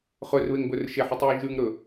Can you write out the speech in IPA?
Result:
χɵrβeŋbɵr ʃeħʉtˤju ʒʉŋɾɵ

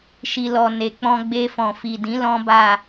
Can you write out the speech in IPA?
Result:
ʃi˨lɔ˨ ne˨k͡pɔ̃˧ ɡ͡be˧fɔ̃˨fi˨dĩ˨˦ lɔ̃˦ba˦˨

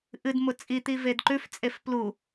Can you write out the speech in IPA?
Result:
ʔɨdmʊ t͡sʼit̪i vedǃʉft͡sʼef plu

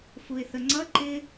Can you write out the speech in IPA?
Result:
fuɪ̯θəŋ͡ǀʌ ǃɪ

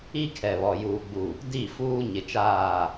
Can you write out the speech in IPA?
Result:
i˦kʰɛ˨βɔ˨ juː˨ɡ͡bu˨ | di˦˨fuː˦ ɲɪ˨t͡ʃaː˦˨

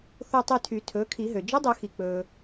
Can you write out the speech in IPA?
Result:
θo˦˨tˤy˦˨tʰy˨˩˦ tʰɵː˩˥kʰi˨˩˦ɦø˩ d͡ʒɵ˧˥dˤɵ˨˩˦ xi˩k͡pɵː˩

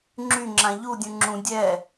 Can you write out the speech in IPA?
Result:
ŋ͡ǁyŋ͡ǁã ʎudʲũ ŋ͡ǁũ dʲɛ

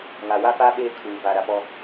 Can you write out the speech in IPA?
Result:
ŋa˨wa˦faː˦ ɓeː˦kʰuː˨ va˨ɾa˨pɔ˦

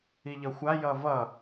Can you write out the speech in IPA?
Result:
iʎʌxʷa jʌvʌ

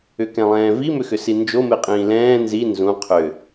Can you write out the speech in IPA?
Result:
ʏkɛ̃lˠɛ̃ːvi mʏxʏsind͡ʒo meqʼĩːlɛ̃ː nzi nzũ qʰʏ

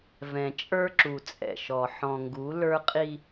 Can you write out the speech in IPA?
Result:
vɛ̃˨t͡ʃʼə˞˦ǁu˨ t͡sʼɛ̰˨ʃɔ˨ ħɔ̃˨ŋɡu˨˦ lə˞˦qʼi˦

